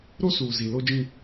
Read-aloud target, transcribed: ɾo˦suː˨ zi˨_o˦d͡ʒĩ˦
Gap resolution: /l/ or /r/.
l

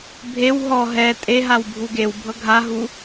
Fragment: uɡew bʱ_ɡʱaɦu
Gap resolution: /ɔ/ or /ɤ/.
ɤ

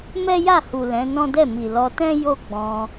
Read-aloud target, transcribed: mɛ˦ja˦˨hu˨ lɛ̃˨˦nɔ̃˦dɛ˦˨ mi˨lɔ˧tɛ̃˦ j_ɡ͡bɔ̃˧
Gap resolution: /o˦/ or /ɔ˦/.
o˦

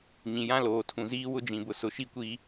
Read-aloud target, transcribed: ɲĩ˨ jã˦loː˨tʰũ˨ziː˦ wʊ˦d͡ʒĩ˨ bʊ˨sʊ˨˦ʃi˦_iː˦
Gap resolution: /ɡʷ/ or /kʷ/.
kʷ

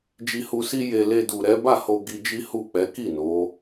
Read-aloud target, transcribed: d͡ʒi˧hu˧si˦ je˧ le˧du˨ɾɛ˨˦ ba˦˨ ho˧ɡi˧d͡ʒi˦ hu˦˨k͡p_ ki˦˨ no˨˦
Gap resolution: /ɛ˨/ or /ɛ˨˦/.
ɛ˨˦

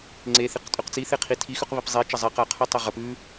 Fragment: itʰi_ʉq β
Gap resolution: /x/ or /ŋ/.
x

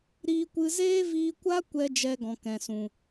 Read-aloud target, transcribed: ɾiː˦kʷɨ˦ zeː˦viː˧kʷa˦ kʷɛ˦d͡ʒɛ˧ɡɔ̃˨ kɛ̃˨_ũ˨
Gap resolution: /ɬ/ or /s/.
s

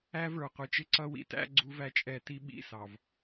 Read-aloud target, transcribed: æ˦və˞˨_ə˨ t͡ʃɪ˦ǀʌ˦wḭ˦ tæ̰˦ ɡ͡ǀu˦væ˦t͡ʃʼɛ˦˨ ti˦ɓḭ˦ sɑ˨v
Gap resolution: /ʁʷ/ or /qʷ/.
qʷ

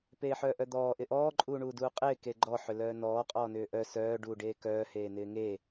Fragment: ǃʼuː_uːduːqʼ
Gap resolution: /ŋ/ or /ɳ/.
ɳ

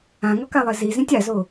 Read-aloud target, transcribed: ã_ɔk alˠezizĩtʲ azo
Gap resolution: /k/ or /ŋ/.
ŋ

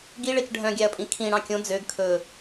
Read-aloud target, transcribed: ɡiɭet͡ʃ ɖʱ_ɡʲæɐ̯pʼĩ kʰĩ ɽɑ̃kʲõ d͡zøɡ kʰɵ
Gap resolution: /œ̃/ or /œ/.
œ̃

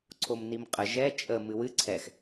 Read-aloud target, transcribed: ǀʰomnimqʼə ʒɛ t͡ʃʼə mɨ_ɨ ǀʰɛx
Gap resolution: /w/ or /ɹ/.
w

